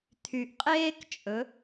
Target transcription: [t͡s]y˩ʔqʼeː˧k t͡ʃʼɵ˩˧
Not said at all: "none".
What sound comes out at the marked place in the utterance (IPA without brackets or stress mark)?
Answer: t̪ʰ